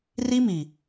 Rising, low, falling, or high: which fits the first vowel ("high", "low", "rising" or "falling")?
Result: high